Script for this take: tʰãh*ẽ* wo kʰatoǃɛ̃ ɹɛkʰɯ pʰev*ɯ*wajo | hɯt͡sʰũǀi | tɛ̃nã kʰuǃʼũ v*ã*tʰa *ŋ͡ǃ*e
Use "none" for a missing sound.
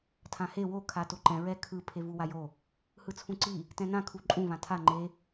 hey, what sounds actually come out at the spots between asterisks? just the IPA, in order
e, u, ã, ŋ͡ǃ

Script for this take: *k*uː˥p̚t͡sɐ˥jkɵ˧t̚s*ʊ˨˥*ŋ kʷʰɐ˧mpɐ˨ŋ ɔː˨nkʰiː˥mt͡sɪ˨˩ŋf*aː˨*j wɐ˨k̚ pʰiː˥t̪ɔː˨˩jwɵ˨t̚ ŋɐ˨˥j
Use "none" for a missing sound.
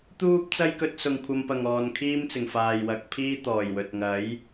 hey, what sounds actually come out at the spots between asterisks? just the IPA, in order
t̪, ʊ˨, aː˨

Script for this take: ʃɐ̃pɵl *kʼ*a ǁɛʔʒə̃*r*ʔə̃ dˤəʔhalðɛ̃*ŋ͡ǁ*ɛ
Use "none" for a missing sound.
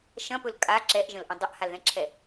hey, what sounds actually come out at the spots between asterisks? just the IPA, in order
kʼ, l, ǁʰ

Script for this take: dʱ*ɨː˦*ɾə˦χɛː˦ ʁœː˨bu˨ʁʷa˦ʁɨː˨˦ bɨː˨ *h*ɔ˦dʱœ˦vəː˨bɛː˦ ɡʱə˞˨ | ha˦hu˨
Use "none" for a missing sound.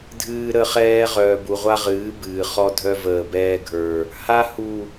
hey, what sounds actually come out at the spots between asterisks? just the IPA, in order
ɨː˦, χ

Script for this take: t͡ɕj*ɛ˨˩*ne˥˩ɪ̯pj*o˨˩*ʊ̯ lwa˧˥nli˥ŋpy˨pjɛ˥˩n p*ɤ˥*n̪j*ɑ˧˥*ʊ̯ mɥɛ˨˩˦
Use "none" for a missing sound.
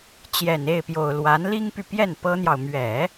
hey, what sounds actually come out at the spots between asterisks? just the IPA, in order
ɛ˨˩, o˨˩, ɤ˥, ɑ˨

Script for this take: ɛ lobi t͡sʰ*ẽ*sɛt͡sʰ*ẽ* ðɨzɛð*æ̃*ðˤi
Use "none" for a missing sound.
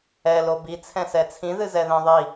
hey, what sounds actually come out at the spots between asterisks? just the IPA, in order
ɛ̃, ĩ, ɛ̃

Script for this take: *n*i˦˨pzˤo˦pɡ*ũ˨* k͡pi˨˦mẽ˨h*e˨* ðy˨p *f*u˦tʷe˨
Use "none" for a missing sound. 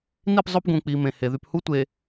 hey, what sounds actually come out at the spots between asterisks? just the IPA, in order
n, ũ˨, e˨, h

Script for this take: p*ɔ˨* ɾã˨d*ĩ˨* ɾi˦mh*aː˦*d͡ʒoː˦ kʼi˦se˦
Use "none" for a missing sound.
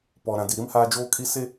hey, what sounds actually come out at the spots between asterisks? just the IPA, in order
ɔ˨, i˨, aː˦

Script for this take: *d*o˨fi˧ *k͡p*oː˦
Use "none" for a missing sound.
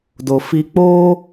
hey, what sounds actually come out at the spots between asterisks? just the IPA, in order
d, k͡p

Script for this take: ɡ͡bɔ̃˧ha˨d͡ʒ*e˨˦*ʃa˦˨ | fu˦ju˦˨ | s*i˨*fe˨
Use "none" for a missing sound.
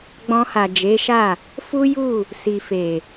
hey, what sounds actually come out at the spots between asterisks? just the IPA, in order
e˨˦, i˨

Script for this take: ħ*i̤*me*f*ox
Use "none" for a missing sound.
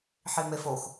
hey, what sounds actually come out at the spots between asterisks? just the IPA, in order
i, f

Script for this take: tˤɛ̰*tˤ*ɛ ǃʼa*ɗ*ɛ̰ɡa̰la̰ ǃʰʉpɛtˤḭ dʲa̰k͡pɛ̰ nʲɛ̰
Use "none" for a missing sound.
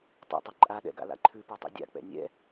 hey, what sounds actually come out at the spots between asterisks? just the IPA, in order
tˤ, ɗ

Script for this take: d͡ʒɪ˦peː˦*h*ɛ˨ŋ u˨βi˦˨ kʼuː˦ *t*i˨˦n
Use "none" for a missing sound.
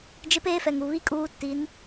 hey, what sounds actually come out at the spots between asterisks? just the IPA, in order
f, t

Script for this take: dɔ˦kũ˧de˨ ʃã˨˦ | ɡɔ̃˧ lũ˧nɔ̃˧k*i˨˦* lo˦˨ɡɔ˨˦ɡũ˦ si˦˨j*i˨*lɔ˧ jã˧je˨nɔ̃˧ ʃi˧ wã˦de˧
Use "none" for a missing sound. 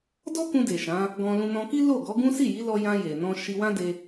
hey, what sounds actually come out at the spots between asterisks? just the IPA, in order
i˦, i˨˦

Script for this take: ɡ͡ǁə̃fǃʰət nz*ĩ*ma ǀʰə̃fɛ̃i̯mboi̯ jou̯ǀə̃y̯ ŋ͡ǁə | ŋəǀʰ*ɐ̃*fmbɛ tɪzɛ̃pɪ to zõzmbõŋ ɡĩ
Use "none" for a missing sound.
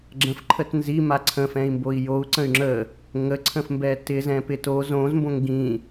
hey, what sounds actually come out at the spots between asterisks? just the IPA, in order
i, ə̃

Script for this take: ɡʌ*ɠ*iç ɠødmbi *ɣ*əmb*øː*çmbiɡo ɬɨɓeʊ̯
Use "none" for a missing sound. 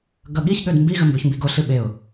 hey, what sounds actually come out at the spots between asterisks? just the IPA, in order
ɠ, ɣ, ø

